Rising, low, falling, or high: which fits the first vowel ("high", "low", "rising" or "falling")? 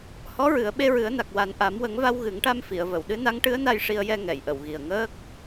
rising